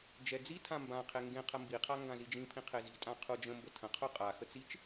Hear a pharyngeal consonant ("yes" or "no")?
no